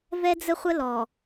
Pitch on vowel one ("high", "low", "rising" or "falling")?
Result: high